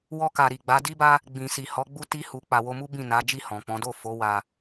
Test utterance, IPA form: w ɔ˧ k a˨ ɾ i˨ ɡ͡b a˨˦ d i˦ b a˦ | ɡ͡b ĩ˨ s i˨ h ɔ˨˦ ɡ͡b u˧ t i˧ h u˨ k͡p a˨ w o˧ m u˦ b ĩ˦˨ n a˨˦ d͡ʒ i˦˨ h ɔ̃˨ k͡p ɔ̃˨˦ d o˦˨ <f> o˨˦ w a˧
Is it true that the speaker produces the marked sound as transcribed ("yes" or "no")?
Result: yes